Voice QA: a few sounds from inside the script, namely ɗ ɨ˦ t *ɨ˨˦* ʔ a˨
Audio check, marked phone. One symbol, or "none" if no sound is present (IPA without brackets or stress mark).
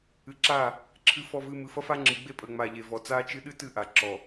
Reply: ɨ˦˨